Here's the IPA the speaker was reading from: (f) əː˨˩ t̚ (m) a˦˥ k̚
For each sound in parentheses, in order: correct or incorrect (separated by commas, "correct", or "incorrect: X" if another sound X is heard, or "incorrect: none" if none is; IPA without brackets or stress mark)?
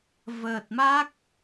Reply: incorrect: v, correct